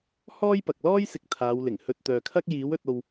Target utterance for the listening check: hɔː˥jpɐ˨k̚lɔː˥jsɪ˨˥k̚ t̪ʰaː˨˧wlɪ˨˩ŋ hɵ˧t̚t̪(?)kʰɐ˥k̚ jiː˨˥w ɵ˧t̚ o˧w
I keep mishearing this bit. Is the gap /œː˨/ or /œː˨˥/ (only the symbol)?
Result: œː˨